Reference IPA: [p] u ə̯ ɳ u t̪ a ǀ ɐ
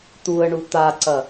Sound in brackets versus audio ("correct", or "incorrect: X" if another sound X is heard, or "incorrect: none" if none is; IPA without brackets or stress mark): incorrect: t̪